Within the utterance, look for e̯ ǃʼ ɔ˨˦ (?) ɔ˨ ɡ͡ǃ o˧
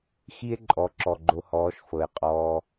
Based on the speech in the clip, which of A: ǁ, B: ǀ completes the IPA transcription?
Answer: A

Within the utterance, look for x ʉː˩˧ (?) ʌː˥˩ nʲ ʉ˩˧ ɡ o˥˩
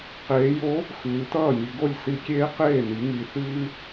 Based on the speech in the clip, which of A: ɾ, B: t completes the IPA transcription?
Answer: B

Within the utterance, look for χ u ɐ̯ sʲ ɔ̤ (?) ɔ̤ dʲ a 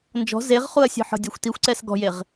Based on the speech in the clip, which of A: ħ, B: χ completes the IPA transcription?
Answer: A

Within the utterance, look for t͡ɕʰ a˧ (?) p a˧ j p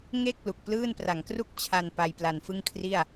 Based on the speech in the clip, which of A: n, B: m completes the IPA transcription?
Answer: A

